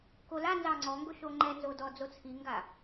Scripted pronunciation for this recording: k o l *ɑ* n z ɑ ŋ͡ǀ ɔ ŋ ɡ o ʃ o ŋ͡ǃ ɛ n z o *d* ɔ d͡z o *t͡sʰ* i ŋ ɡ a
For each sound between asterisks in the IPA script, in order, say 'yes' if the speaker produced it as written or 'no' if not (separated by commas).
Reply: no, yes, yes